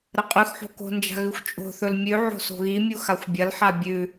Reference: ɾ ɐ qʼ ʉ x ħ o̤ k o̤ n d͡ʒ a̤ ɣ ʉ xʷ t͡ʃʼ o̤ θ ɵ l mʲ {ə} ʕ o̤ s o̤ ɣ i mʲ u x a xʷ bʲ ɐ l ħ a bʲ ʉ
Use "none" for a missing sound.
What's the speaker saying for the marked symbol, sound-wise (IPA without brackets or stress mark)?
ʉ